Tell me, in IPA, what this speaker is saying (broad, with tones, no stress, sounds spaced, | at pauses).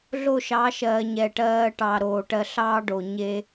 ɮ o˦˨ ʃ ɑ˨˦ ʃ ɜː˨ ɲ ɛ˨ ʈ ɜː˧ ʈ ɑ˨ ɾ oː˨ ʈ ɜ˧ ɬ ɑː˦ ɖ o˨ ɲ e˦